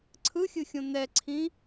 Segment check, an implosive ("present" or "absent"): absent